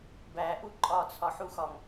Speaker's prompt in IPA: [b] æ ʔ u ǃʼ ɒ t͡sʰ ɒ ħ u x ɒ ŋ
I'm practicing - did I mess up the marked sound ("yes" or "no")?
no